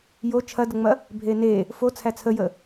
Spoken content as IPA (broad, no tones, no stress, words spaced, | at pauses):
jo t͡ʃʰɐdəŋ͡mɐ | bʱene | fo t͡sʰæt͡sʰəjə